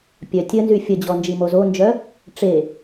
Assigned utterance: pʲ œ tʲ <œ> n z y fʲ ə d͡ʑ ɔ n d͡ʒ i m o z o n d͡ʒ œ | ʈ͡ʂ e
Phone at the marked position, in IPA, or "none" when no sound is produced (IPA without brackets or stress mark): ə